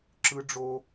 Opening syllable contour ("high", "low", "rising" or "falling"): high